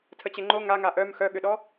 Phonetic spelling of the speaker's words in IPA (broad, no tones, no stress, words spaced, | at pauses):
tʰət͡ɕeŋ͡ǃo ŋaŋa ʔœm xœɠʏɗɔ